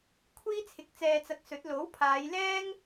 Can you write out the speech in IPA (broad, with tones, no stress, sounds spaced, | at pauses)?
kʷʰ iː˥ t͡sʰ ɪ˨˥ k̚ t͡s ɛː˧ t͡s ɐ˧ k̚ s ɵ˨˥ t̚ l o˨˥ w pʰ aː˨˧ j l ɛː˥ ŋ